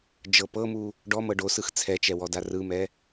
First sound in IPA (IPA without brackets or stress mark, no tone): d͡ʒ